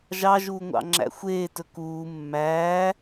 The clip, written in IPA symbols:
ʒɑ ʒuːŋʷɑ̰ŋ͡ǁæ̰xʷeː tɵkuː mːæː

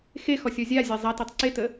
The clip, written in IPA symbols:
xexɔsʲɔ zʲazʲa zˤatitˤ ǀetə

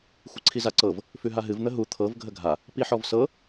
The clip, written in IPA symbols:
xʷɨǀʰizaǀɤv | fʉɦaɦɨv n̪əɦu t̪ʰɤv ɡʱəɡʱa | piħɔvsɤ

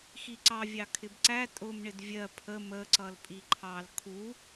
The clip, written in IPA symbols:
xiǀɑvʲɑ kʰɪbǀæ tʼʊmɳɪd vʲɜ pʰə məǀʌl pʼiǃʰɑl kʰu

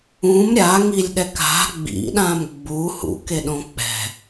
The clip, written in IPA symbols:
ũm ɾʲaŋilʲɗɛk a̤ ɡ͡bḭɗãm ɡ͡bu hṵkeɗõ k͡pɛ̤

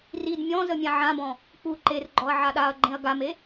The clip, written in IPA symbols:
rid mʲɔ̃ zəmʲãʕãbɔ̃ | k͡pu ǃerɡ͡ǃɔɐ̯ ʕaɗaɐ̯ɡ͡ǃẽɐ̯ ɡame

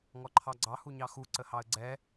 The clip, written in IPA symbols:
ŋɔǃʰɑɡ͡ǀɑ huɲɑxu ǀəhɑə̯ɡ͡ǀɛ

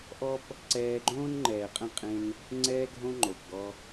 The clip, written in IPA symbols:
ʔɔ˦p | ǀɛː˧ɡ͡ǃõː˦n ŋ͡ǃɛː˨qʼə̃˦˨ qʼẽ˦n | ŋ͡ǀɛː˧ɡʱõ˧ ŋ͡ǃo˨pɡɔ˧

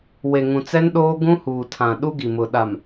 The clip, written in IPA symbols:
we˨ŋũ˨t͡sɛ˦n ɗoː˦ɡũ˦huː˨ tʰã˨ɗu˦ɡi˨mʊ˨ ɗa˨m

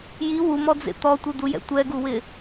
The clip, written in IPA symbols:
ji wumɔd͡zḛ t̪ɔtʷid̪ujɛ̰ tʷɛɡuwɪ

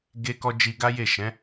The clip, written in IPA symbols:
ɡe˦kɔ˦ d͡ʒi˧ɡa˦je˦˨ ʃɛ̃˨˦

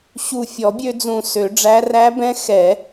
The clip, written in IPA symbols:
ɕu˨˩ fʲɔ˨˩˦bʲø˧d͡zũ˨˩ sø˨˩˦ɖ͡ʐæ˧˥ ræ˧˥bɛ̃˧˥ xɛ˨˩˦

